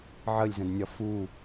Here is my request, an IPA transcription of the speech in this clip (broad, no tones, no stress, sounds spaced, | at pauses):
ʕ ə lʲ z ə̃ d nʲ ɒ f u